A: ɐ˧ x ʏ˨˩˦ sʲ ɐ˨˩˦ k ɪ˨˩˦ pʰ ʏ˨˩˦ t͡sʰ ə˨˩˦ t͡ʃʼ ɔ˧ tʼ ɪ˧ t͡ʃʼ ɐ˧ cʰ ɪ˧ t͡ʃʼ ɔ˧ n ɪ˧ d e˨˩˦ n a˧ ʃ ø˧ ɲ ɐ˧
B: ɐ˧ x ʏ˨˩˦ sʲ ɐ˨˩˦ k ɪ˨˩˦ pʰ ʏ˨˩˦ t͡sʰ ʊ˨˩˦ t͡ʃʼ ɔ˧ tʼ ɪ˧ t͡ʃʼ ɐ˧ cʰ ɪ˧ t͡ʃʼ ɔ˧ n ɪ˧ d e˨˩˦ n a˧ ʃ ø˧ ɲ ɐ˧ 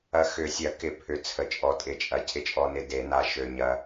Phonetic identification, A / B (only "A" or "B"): A